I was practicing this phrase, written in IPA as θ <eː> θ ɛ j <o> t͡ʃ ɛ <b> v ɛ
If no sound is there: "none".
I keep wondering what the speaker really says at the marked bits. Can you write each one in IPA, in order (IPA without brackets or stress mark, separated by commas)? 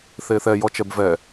eː, ɔ, b